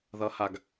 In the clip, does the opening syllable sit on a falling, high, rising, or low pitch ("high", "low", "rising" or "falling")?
rising